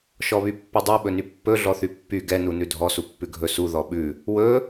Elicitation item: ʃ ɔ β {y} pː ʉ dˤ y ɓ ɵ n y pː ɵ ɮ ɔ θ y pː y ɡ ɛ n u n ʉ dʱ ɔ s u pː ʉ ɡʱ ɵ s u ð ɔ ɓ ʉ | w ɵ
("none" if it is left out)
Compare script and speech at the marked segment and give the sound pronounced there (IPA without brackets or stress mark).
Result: y